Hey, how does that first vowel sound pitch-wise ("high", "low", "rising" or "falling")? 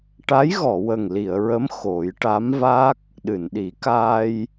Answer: rising